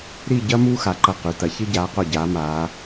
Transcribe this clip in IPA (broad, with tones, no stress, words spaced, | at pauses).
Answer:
ɾi˥˧ ɟɐ˥ muː˥ xa˩˧ǃɐ˧˩ qʉ˩˧tɐ˩˧çɨ˥ ɟaː˩˧qo˧˩ɟaː˩˧ maː˩˧